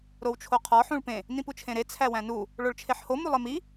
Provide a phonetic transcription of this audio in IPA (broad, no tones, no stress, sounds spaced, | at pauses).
ɾ o w t͡ʃʰ o qʰ ɒ ħ ũ ɭ p ẽ | n ĩ p u t͡ʃʰ ẽ ɾ e t͡sʰ æ w æ̃ n u | ɭ o ɭ t͡ʃʰ e ħ h o m u lˠ e m i